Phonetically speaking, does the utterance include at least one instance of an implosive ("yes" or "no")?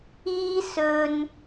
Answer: no